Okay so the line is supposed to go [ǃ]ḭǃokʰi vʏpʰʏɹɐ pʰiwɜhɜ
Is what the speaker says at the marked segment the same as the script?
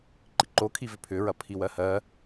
yes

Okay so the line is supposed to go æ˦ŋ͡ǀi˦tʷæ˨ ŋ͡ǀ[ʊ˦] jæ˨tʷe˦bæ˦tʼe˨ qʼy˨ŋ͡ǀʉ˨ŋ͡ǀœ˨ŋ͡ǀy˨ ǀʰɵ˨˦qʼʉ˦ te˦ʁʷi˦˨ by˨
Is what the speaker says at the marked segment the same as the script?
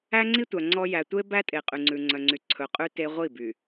no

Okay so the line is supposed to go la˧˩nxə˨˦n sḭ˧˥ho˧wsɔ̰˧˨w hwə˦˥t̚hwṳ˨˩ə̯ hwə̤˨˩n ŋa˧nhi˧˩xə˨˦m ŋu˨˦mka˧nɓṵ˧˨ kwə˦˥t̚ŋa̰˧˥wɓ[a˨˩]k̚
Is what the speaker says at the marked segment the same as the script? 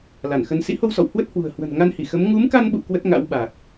yes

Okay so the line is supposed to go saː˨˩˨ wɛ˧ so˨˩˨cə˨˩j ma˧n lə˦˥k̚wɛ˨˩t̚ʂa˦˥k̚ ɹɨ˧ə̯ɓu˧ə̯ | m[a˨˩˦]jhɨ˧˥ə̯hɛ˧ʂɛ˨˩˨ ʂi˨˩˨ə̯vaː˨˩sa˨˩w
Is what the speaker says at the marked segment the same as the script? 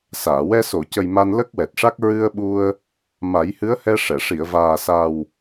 yes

